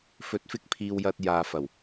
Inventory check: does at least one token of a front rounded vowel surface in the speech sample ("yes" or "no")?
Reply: no